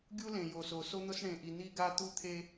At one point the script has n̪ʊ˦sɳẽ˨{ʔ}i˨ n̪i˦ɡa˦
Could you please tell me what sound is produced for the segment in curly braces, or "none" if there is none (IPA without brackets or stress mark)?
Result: ʔ